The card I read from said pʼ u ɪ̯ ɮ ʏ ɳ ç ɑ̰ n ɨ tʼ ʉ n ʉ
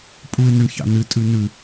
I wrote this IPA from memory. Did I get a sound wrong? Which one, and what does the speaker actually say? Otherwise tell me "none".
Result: ɮ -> n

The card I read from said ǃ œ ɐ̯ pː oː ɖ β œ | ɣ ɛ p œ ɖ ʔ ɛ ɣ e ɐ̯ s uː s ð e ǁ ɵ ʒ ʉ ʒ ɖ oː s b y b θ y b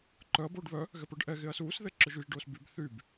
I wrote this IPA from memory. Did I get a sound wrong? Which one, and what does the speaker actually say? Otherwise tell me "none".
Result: pː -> b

